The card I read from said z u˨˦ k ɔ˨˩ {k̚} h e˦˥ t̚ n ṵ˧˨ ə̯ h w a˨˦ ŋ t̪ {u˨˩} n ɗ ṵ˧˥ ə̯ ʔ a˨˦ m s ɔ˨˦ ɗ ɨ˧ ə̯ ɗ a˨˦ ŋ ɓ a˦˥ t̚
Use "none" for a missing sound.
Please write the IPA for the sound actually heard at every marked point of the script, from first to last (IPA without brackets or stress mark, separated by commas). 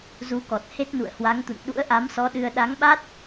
t̚, ṵ˧˨